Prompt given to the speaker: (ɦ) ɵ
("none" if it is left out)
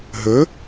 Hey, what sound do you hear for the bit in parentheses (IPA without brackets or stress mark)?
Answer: ɦ